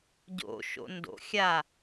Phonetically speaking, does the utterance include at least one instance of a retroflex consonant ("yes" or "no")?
no